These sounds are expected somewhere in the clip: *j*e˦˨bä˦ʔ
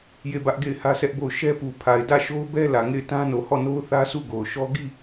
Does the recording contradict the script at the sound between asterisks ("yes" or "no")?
no